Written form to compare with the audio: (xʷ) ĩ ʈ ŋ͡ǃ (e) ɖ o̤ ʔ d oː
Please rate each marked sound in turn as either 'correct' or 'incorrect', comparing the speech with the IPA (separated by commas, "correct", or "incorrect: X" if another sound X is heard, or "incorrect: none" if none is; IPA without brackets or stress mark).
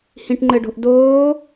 incorrect: h, incorrect: ɘ